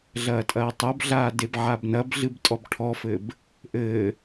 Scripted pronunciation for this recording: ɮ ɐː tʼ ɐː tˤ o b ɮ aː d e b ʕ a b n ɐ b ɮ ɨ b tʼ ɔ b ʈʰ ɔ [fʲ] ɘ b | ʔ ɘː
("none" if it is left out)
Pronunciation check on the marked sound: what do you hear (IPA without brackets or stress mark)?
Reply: f